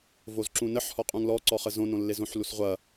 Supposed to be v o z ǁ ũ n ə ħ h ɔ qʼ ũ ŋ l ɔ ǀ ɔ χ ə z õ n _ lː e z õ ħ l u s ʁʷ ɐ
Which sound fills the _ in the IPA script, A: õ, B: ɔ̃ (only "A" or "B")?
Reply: A